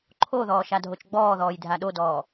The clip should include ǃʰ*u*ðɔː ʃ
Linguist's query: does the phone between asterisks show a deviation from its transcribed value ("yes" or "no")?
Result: yes